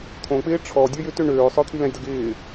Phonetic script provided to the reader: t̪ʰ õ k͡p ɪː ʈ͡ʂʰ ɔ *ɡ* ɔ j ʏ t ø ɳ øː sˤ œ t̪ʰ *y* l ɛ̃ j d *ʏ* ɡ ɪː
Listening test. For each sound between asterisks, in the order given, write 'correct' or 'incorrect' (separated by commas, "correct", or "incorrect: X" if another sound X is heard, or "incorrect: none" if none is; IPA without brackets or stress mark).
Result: incorrect: dʲ, correct, incorrect: ə